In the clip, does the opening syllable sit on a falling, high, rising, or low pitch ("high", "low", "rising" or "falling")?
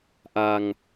low